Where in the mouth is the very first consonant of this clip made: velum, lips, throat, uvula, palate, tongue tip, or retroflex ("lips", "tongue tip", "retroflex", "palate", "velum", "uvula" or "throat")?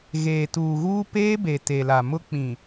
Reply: velum